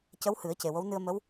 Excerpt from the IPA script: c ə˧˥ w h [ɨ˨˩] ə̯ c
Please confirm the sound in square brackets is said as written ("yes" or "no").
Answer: no